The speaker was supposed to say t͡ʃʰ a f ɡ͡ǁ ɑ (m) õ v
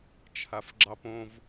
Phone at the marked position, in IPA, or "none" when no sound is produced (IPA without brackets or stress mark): p